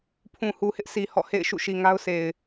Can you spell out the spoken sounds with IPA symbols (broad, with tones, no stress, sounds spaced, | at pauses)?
pʰ ũ˨ h u˨ h ɪ˦ ʔ sʰ i˨ h ɔ̰˦˨ h ḛ˦˨ ɪ̯ ʃ ṵ˦˨ ʃ i˨ ŋ a˦ ʊ̯ s e˨ ɪ̯